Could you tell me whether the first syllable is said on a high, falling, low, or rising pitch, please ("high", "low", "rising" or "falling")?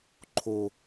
low